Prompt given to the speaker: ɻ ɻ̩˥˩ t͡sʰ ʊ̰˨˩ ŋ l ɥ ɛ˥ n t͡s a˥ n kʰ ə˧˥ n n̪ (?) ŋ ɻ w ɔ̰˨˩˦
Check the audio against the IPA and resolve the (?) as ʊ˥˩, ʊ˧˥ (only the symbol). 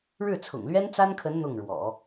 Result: ʊ˥˩